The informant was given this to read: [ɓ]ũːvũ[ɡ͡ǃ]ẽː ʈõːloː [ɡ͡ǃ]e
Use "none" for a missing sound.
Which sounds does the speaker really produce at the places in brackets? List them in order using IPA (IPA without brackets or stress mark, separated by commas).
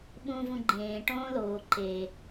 ɓ, ɡ͡ǃ, ǃ